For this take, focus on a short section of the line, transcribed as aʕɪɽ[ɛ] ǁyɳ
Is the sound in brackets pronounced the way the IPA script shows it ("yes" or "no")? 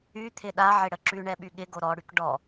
no